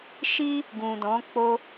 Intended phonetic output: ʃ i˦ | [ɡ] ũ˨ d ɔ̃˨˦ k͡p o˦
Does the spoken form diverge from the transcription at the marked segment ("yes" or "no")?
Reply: no